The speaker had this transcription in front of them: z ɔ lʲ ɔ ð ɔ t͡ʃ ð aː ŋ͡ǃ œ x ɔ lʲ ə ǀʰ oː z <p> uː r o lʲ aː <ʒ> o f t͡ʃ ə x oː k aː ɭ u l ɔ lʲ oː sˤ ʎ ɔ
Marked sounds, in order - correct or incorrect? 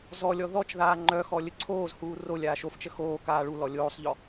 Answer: incorrect: h, incorrect: ʃ

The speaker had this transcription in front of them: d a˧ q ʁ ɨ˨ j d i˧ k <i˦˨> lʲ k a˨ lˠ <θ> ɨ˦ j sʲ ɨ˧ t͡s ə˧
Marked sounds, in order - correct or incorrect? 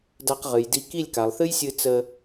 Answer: correct, correct

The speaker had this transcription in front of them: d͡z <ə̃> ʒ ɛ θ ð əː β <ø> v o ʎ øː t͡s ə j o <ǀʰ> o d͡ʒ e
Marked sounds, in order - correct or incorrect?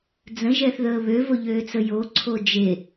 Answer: correct, correct, correct

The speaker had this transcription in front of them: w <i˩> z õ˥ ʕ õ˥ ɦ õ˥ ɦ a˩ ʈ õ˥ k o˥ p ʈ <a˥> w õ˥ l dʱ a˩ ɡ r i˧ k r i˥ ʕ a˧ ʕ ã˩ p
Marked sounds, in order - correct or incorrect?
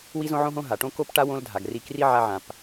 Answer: incorrect: i˥, correct

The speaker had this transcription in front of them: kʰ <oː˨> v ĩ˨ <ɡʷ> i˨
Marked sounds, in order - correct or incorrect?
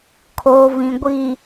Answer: correct, correct

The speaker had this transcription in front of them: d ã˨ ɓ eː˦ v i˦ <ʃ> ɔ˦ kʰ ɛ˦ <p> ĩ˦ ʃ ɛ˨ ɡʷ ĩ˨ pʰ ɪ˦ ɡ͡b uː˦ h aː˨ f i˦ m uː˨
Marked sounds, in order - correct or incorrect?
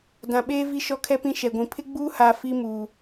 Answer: correct, correct

